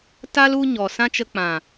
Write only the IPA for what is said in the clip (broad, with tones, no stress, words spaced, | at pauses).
ta˦l u˦ɲɔ˨ sã˦t͡ʃə˧k͡pã˨